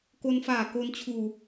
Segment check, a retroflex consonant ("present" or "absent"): absent